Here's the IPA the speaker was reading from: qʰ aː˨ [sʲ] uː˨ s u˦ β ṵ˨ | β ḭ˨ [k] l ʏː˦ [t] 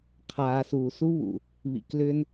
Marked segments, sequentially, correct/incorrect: incorrect: s, correct, incorrect: n

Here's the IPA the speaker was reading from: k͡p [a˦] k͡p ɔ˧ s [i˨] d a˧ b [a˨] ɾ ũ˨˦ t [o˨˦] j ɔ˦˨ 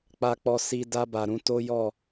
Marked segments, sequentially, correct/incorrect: incorrect: a˧, incorrect: i˧, correct, incorrect: o˦

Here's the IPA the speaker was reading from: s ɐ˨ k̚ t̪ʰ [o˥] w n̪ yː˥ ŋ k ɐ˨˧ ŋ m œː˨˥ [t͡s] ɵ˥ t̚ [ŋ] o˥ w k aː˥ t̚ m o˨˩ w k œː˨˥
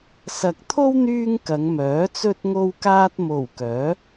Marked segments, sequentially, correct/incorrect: correct, correct, correct

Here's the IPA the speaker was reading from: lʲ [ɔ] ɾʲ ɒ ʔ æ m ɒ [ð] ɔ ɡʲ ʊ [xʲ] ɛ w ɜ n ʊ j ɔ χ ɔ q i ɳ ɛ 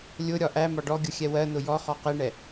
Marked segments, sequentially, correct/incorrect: incorrect: ʊ, incorrect: ɖ, correct

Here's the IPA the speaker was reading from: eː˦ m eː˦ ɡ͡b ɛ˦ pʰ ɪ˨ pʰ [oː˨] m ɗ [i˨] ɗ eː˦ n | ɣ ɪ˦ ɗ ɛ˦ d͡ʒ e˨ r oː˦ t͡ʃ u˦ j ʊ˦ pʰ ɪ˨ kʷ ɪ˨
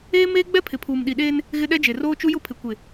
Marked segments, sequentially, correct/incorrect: incorrect: uː˨, correct

